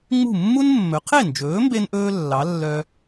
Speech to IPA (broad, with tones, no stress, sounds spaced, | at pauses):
ŋ͡m ṳ˥˩ mː u˥ n mː ɵ˩˥ qʰ e˥˩ n d͡ʒ ɵː˩˥ m b e˥ n ʔ ɵː˥ lː ɑ˩˥ lː œ˧